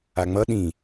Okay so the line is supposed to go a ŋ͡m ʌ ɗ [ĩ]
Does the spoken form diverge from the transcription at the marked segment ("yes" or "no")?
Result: no